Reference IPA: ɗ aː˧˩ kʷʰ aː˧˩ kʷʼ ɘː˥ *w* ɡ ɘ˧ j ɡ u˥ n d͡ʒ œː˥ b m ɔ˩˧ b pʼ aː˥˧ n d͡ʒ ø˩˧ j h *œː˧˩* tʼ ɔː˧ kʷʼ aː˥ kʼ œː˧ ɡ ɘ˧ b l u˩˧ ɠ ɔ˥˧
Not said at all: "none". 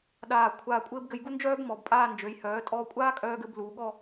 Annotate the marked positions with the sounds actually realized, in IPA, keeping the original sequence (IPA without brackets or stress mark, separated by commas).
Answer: b, œː˩˧